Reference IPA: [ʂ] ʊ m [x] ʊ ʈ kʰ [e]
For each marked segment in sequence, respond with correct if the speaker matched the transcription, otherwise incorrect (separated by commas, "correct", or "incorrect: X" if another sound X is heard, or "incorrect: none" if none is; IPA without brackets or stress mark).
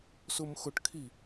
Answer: incorrect: s, correct, incorrect: i